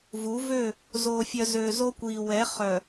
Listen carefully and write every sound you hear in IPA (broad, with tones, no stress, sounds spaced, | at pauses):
v u˨˦ v ø˦˨ | z o˨ fʲ œ˨ z ø˨ z o˦ kʷ i˨ w ɛ˨˦ χ œ˨